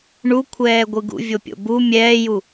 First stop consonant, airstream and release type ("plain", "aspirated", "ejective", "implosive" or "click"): aspirated